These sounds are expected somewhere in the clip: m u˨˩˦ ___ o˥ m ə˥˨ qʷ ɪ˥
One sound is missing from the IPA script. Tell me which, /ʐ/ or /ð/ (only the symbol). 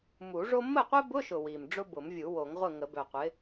ʐ